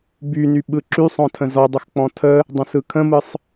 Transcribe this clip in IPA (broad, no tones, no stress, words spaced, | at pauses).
byny ɓɯǁysˤɔ̃tʰə̃ zɔdˤəx k͡pɔ̃tʰə | dˤə̃sɯkʰə̃mɯsˤ